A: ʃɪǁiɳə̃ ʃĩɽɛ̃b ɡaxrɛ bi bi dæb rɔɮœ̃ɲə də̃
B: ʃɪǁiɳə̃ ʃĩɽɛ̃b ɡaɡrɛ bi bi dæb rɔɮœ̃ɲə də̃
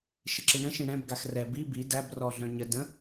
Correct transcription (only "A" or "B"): A